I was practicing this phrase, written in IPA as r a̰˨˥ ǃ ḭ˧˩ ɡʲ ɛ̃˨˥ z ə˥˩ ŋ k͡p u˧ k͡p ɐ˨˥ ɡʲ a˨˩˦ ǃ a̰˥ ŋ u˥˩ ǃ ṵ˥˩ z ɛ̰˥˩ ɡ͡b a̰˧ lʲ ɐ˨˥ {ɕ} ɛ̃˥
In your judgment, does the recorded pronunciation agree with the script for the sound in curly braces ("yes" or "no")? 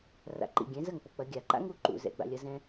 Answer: no